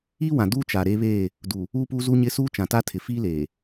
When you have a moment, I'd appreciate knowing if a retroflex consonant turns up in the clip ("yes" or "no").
no